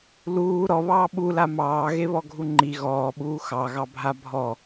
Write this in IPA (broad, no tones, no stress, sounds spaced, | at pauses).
l uː ɾ ɔ β ɑː ɓ u l a m ɑː ɣ e β ɔ ɡʱ u ŋ͡ǃ i ɣ ɔː ɓ uː x ɑ ɣ ɑ bʱ a bʱ ɔ